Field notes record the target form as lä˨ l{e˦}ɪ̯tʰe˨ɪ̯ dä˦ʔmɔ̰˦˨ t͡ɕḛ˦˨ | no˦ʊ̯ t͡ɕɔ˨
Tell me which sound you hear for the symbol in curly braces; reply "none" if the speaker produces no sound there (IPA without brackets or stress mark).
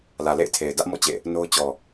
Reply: ḛ˦˨